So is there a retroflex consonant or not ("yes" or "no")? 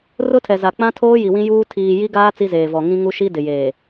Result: no